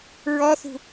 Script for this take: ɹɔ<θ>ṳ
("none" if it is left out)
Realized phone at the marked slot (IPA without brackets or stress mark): θ